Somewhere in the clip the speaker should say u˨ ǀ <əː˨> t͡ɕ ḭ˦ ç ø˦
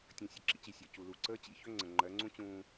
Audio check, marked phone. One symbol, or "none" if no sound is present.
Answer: əː˦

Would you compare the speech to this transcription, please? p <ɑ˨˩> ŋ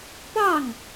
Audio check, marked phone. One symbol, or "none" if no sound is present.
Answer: ɑ˥˨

